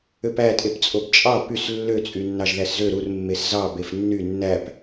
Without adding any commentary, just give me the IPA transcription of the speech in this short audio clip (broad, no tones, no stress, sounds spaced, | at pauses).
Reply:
ø p æ tʼ e p t͡sʼ o b t͡ʃʼ ɑ p y s lː ø t͡sʼ y nː ɑ ʒ ð æ s z ø ɾ u r mː e s z ɑ b e f nː y nː æ p